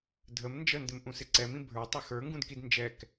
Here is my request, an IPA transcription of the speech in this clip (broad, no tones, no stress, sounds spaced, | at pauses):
dʱ ə m n d͡ʒ ə n d ɪ m ʔ ũ s ɪ ǀ ɛ m ĩ bʱ ə˞ tˤ ɘ x ə˞ ŋ ɡ ũ d k i d n d͡ʒ ɛ k